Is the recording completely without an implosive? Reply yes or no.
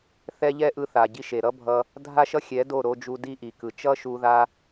yes